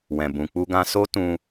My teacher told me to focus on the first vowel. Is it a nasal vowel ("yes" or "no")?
yes